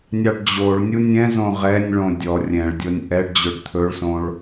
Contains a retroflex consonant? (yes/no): yes